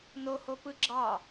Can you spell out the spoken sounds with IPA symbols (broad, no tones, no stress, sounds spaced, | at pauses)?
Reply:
n o h o p ɯ ɡ͡ǁ ɑ